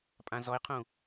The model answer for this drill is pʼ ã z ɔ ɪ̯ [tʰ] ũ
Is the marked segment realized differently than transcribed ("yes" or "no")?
yes